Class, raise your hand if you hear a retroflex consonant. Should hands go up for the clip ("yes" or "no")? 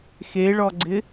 yes